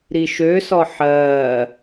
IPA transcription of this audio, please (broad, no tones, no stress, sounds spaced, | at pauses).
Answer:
ɾ i ʃ ø s ɔ ħ ɜː